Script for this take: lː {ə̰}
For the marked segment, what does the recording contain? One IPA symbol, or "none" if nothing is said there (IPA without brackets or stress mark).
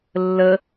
ə